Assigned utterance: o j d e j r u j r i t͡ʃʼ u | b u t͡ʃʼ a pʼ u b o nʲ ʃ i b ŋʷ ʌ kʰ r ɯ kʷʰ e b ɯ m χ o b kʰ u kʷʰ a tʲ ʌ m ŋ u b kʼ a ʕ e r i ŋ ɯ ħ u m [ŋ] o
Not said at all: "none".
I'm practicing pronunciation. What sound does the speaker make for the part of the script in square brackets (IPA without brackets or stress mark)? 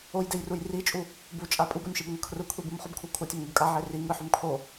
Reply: kʰ